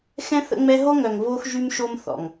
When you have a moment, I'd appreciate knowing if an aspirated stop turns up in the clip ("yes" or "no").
no